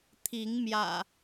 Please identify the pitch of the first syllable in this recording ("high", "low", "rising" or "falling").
rising